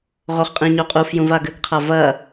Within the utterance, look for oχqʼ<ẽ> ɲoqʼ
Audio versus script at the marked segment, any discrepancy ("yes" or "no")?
yes